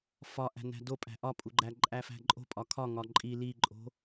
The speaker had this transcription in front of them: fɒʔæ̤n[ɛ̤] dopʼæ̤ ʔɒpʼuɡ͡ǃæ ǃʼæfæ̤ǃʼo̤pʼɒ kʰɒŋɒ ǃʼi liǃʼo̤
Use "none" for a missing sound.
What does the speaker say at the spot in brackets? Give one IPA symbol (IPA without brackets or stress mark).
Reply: æ̤